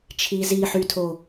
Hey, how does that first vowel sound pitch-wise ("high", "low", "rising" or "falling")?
low